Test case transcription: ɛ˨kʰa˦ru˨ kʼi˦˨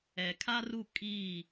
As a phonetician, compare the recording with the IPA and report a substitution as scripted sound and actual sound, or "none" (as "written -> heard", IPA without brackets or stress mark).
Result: u˨ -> u˦˨